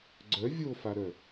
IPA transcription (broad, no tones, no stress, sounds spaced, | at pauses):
ɡ͡ǀ œ vʲ o f a ɾ œ